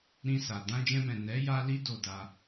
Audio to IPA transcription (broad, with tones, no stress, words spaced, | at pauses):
ɾĩ˧sa˨ dã˧d͡ʒɛ̃˧mɛ̃˨ nɛ˨˦ ja˦li˦ do˦˨da˧